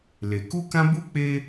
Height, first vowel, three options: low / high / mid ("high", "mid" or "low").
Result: mid